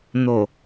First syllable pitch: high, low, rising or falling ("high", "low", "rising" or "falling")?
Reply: low